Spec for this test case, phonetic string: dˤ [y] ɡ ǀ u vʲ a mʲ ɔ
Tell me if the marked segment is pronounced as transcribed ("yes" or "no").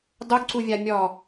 no